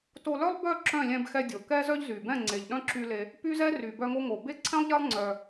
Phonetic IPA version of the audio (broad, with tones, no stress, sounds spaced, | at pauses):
t o˧ l œ˦ lˠ b œ˦˨ ǁ œ̃˦˨ lʲ ɛ̃˧ b x ɛ˧ dʲ o˨ k ɛ˦ z œ˦ ʎ z y˨ b ɛ̃˦˨ ŋ͡ǀ e˨ ʎ ɗ œ̃˦ ǁ y˧ l e˧ | p y˦ z ɛ˦ r y˨ b œ˧ ŋ o˧ ŋ o˨ b e˦ ǀʰ ɛ̃˦ lˠ ʎ ɛ˦ lˠ ŋ͡ǀ œ˧